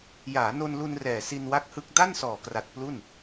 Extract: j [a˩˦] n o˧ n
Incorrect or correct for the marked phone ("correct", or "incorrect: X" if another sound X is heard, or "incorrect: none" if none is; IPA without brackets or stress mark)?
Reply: incorrect: aː˩˦